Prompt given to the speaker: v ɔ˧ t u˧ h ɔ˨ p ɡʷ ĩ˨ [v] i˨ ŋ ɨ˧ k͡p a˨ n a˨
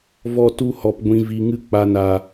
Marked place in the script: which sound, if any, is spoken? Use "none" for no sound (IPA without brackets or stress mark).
v